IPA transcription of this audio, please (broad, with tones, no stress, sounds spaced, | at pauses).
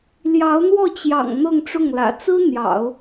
l j ɑ˧˥ ʊ̯ n̪ w ɔ˥˩ t͡ɕ j ɑ̰˨˩ ŋ n̪ ɤ˥˧ ŋ ʈ͡ʂ ʊ˥˩ ŋ l ä̰˨˩ t͡s ɹ̩˥ n̪ j ɑ̰˨˩˦ ʊ̯